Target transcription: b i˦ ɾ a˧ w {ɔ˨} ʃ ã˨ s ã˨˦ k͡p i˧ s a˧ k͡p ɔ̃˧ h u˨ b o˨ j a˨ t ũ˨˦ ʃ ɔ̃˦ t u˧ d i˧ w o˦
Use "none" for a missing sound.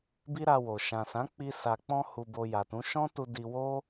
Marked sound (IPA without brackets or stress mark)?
o˨